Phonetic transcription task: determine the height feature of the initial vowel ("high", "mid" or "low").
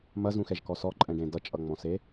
low